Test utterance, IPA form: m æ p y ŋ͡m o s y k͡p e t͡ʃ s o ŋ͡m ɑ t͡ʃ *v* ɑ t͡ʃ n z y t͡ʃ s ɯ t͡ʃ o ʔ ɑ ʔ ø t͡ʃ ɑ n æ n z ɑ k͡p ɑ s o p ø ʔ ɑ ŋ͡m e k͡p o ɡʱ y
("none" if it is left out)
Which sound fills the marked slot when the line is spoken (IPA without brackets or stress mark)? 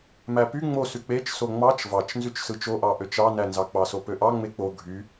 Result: v